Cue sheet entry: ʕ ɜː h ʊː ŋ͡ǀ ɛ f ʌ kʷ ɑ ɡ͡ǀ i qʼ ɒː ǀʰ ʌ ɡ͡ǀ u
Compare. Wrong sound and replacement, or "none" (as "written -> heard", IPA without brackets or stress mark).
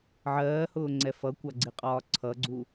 none